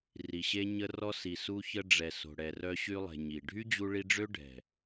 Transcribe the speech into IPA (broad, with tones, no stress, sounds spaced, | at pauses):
r i˨ ɕ e˦ ɲ ə˦ r ɔ˧ s i˨ s u˧ ç ə˧ ɖ͡ʐ ɛ˨ s o̤˨ ɽ ɛ˨ r œ˧ ɕ y˧ lˠ e̤˨ ɲ i˨ ɖʱ y˦ d͡ʑ u˧ ɭ i˧ ɖ͡ʐ ø˦ ɖʱ ɛ̤˨